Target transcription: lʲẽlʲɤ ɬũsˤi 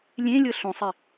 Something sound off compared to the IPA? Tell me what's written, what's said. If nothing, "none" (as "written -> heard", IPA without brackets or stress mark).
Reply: none